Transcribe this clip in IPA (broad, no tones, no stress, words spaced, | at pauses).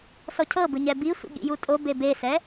sɔcʰɤbɯ ɲɛbisʷḭ ɠḭjutʼobe besɛ